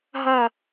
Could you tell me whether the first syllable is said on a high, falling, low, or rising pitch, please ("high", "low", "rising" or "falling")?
falling